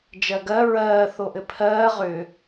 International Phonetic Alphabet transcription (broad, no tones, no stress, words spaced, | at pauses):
d͡ʒɜɡɜ ɹɜː θoʔɘpʰɜː ʁʏ